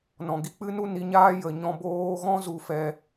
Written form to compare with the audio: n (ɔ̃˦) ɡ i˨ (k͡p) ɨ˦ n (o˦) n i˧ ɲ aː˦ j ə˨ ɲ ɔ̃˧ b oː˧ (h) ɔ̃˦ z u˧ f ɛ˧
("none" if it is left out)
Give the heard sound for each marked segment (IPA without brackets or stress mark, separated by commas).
ɔ̃˨, k͡p, u˦, ɣ